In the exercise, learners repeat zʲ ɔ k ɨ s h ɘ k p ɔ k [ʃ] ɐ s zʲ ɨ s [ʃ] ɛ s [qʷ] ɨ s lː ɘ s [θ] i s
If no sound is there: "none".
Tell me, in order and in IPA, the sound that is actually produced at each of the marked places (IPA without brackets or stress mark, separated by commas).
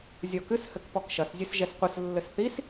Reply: ʃ, ʒ, qʷ, θ